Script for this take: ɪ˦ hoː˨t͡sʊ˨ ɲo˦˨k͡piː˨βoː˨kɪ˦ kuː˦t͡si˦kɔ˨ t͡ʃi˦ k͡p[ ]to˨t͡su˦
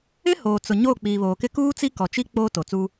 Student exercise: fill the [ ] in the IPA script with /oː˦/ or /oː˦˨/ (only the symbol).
oː˦